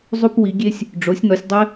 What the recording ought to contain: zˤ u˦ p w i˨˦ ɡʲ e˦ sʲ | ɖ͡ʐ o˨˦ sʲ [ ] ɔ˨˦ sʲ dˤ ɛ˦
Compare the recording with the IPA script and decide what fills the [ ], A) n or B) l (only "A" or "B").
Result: A